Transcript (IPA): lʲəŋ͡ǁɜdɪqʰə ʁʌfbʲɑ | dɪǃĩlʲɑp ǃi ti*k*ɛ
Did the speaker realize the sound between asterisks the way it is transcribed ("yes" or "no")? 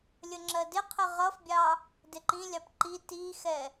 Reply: no